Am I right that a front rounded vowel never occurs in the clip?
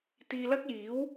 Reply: yes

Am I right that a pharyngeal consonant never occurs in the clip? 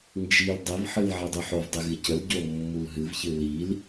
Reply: no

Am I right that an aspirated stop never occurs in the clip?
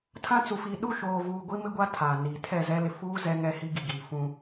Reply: no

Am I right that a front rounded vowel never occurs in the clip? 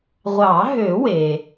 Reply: no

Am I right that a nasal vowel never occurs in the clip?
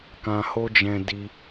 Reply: no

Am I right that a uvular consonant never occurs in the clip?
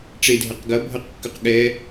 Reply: no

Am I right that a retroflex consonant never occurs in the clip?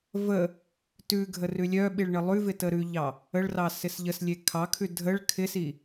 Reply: no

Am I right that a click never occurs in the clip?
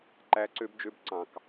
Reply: no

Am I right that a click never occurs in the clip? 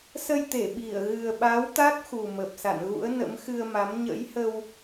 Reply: yes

